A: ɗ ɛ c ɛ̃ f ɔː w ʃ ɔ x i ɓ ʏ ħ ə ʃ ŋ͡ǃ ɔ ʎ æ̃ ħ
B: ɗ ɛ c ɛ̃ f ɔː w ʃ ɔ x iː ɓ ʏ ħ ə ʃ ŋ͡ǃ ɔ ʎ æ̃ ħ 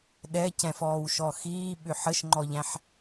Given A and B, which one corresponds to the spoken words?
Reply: B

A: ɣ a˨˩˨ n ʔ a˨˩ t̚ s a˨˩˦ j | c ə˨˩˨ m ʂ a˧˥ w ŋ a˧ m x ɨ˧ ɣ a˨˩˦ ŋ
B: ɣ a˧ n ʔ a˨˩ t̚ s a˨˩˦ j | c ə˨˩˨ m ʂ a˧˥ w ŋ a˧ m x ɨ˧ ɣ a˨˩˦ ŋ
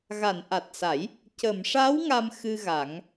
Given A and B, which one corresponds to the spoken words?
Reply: A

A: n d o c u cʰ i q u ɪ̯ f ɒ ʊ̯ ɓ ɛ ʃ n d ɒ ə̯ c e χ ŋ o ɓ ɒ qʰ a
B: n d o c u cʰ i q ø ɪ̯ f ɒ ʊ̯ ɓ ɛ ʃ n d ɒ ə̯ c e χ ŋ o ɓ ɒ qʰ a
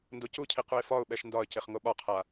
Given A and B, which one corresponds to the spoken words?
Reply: A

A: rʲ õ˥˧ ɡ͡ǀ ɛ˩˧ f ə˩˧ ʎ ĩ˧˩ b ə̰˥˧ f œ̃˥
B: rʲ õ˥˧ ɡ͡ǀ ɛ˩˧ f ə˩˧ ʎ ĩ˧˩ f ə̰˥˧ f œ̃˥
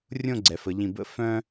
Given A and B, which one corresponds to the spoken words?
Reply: A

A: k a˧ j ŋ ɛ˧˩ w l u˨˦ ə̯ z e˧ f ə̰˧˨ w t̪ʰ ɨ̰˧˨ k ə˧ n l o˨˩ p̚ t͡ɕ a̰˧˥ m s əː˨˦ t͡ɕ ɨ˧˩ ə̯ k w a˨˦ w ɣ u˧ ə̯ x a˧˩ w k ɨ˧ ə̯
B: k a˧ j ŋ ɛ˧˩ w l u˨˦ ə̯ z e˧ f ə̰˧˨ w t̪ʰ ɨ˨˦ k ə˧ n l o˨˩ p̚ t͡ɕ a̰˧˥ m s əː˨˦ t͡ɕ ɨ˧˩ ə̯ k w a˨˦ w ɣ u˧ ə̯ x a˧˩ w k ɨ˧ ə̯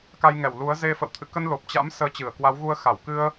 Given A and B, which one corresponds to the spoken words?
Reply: A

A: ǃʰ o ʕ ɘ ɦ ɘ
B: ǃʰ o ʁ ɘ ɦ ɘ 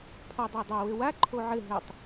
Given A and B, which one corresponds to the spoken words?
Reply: A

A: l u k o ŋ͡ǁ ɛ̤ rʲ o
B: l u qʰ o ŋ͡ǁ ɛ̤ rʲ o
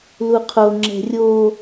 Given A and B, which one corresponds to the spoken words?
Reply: B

